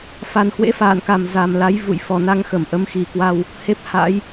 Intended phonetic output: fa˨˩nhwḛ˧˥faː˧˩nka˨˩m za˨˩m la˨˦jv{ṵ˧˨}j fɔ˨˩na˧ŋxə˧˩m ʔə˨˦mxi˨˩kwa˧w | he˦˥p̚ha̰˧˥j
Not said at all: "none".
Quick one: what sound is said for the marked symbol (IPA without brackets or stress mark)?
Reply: ṵ˧˨